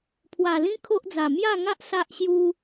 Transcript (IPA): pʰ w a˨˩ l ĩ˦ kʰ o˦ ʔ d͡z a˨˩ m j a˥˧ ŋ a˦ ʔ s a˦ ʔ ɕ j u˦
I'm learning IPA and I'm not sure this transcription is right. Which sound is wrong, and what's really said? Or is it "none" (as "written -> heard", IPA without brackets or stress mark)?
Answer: none